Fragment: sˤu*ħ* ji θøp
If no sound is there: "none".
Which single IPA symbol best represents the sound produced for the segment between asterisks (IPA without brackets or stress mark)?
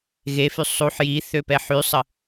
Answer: ħ